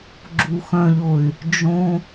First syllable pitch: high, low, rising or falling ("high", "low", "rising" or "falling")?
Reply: low